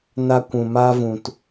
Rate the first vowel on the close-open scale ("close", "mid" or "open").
open